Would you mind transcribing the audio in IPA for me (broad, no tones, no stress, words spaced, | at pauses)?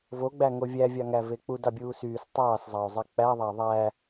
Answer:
voɡ͡bæ ŋovʲævʲɑ ŋævek͡pudɑ bʲuːsyːs tˤɑːszˤɑo̯zˤi k͡pæðˤæ ðˤæ